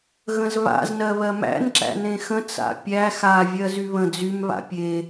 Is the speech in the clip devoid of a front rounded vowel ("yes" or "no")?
no